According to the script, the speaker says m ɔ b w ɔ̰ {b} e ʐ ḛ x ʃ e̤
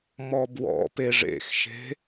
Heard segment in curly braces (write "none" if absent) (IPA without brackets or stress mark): p